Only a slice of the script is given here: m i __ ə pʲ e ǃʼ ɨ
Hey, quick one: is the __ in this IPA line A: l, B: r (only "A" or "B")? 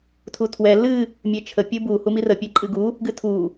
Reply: B